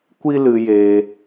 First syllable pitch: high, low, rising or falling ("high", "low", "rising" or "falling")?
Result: high